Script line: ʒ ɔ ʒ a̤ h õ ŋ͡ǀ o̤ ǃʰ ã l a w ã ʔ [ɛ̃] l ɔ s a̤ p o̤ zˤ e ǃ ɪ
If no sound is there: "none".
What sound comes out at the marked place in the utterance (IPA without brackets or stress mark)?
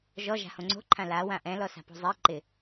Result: ɛ̃